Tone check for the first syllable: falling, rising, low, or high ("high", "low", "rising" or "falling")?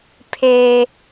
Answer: high